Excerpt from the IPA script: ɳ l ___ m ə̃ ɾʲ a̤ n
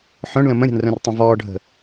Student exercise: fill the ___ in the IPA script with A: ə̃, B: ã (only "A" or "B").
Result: A